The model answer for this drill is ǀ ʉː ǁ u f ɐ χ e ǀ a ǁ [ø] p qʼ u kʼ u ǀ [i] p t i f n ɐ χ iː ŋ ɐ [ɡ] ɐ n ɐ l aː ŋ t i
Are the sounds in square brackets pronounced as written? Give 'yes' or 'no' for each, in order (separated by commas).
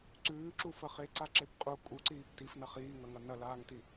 no, no, no